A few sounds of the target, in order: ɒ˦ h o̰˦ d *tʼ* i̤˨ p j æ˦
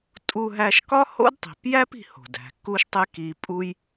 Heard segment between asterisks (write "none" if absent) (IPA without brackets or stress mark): tˤ